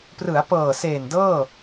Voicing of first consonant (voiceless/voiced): voiceless